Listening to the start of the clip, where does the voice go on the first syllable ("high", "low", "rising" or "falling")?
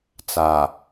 low